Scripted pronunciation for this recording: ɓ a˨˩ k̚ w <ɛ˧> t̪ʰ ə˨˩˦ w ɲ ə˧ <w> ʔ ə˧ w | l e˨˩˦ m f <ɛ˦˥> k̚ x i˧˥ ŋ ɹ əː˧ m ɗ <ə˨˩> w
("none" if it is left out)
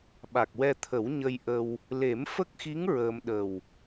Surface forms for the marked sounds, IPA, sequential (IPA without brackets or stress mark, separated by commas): ɛ˧, j, ə˦˥, ə˨˩